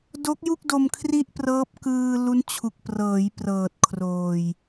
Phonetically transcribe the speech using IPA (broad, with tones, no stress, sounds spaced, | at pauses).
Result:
d o˦˥ k̚ j u˥˩ k̚ d o˧ m kʰ r i˥˩ ʔ p r ɤː˦˥ p̚ k ɯː˧ l u˦˥ n t͡ɕʰ u˨˩ k̚ p r ɤː˩˦ j p r ɤː˨˩ t̚ kʰ r oː˨˩ j